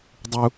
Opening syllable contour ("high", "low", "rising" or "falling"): low